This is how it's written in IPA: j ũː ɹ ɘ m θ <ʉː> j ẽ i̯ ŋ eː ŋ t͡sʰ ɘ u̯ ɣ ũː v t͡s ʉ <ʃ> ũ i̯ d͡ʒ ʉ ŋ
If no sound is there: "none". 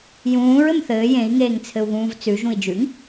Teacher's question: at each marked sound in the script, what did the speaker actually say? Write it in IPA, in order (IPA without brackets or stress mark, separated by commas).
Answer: ɘː, ʒ